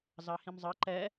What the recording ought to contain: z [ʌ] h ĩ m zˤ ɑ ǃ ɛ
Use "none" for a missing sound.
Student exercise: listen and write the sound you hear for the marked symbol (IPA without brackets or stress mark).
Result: ɑ